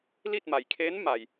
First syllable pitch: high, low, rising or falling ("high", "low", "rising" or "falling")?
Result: falling